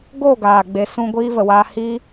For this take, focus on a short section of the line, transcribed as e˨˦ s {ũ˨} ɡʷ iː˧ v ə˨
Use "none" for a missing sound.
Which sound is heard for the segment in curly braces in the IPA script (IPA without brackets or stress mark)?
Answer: ũ˧